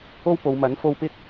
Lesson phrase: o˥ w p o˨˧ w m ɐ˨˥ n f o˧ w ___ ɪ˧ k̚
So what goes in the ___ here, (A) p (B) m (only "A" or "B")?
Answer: A